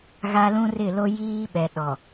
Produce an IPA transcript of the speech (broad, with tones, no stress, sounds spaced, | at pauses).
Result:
ɣ a˦ l ũ˦ r ɪ˦˨ l o˦ j iː˦ ɓ ɛ˨ ɗ ɔ˨